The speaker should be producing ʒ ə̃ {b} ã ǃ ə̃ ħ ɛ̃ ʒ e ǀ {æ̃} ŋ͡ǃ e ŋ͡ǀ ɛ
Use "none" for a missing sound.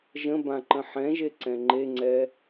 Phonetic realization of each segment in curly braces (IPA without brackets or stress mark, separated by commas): b, ɛ̃